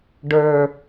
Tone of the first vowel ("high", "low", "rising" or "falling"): low